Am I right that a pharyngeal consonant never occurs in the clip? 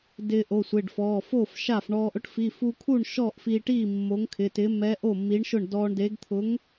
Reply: yes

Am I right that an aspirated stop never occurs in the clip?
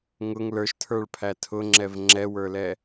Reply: no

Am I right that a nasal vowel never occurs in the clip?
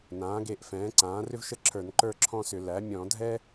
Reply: no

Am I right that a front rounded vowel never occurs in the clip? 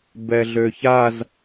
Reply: no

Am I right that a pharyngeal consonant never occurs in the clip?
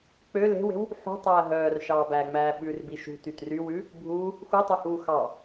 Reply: no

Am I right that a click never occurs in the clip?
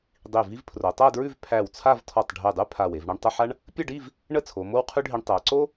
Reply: no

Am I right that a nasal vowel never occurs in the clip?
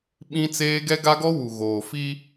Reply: no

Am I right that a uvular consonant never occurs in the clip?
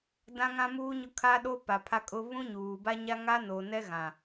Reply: yes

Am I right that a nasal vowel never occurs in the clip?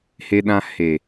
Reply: no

